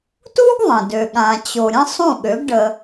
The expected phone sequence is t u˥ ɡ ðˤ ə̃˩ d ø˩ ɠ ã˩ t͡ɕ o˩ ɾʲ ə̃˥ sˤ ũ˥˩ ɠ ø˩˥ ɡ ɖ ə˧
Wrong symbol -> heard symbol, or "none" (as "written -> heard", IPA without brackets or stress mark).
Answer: none